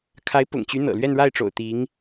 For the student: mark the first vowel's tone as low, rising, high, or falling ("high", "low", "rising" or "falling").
rising